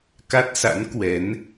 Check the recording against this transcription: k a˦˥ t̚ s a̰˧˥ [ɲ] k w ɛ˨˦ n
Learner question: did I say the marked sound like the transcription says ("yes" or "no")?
no